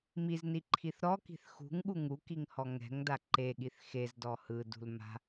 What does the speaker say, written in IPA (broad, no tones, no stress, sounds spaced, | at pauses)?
m i z n i ǃʰ i θ ɾ ɔ k i̤ θ x ṳ ŋ ɠ u ŋ u k i ŋ h ɔ ŋ ɛ̤ ŋ d a ǃ e ɠ i θ x e z d ɔ h ɯ d ṳ l m a̤